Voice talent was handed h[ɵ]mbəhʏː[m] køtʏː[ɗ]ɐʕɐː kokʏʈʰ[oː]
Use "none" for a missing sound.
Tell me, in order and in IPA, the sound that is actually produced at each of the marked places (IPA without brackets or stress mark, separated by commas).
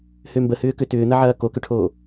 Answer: ø, none, n̪, oː